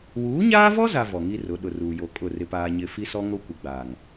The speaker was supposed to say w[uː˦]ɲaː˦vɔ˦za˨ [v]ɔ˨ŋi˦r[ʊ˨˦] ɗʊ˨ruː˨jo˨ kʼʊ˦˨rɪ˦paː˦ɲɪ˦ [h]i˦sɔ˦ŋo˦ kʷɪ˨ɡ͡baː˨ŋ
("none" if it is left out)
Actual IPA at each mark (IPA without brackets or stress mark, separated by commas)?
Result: uː˨˦, v, ʊ˨˦, f